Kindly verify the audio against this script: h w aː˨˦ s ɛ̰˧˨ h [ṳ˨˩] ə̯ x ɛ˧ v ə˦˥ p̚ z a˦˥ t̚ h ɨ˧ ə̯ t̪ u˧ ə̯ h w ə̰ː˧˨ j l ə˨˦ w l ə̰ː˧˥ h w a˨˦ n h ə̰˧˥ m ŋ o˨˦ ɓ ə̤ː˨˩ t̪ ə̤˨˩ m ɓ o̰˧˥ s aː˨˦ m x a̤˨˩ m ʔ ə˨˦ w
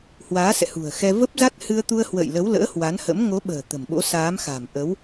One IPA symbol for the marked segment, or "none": ṳ˨˩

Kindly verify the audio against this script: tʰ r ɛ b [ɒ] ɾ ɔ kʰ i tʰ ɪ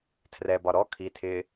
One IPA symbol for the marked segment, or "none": ɒ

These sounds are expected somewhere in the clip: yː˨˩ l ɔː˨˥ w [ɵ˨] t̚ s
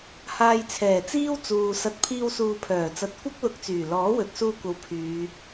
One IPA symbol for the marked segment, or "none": ɵ˨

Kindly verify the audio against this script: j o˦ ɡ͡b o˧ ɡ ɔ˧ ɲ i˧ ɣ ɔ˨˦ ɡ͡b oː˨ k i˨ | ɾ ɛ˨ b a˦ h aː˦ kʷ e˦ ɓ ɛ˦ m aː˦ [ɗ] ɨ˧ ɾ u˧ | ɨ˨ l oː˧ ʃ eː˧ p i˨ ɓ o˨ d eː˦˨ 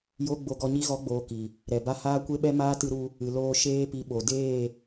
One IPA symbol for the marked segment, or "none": t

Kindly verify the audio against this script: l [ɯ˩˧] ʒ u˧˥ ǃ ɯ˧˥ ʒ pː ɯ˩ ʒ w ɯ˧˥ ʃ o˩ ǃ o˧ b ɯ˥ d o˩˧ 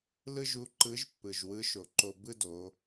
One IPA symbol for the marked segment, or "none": ɯ˥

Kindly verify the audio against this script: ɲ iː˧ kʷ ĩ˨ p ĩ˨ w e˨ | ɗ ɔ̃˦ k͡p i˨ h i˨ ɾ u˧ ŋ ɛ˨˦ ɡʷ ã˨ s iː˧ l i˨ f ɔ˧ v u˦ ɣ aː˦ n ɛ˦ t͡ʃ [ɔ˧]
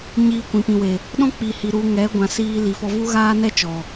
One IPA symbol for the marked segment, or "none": ɔ˨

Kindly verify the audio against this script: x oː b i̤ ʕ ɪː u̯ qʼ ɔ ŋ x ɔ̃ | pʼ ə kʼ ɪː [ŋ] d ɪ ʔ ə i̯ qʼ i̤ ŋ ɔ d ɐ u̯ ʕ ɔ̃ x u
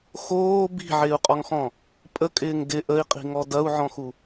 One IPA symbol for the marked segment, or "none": ŋ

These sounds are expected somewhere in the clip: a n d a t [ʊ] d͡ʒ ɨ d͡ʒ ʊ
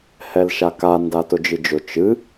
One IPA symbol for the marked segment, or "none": ʊ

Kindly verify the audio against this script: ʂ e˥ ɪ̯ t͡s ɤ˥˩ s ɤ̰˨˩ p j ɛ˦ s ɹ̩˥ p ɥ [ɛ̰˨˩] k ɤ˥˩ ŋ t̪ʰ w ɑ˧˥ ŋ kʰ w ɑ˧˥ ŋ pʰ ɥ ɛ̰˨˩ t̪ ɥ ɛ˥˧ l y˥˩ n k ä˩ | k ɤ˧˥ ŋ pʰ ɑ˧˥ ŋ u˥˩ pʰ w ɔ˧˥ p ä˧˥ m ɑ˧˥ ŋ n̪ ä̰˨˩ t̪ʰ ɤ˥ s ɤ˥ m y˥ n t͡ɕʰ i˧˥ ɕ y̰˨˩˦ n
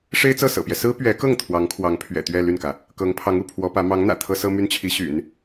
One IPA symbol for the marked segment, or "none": ɛ˧˥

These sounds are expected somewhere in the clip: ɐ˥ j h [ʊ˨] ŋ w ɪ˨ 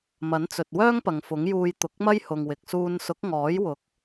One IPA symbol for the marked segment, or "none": ʊ˨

